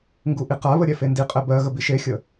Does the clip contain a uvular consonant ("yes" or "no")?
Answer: yes